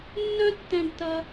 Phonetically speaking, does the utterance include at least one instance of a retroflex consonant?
yes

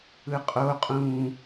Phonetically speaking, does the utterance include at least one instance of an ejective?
yes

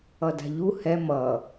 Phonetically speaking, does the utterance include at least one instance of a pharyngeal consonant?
no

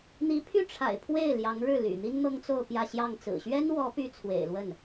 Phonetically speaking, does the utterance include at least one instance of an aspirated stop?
yes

